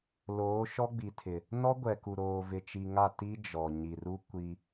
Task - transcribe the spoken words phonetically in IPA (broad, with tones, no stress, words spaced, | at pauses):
loː˨˦ʃɔ˦ɡ͡bi˨tʰɪ˨ | nɔ˦ɡʷɛ˨ku˨ɾoː˨ vɪ˨t͡ʃi˨ŋa˦˨ ti˦ d͡ʒɔ˨ ɲi˨ru˦ kʷi˦